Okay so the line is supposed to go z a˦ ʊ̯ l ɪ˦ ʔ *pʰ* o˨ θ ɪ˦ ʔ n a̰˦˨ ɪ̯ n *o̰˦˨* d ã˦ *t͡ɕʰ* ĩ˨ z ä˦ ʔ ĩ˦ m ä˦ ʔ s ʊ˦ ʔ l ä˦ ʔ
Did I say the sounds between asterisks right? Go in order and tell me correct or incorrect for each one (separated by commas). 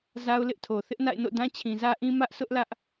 incorrect, correct, correct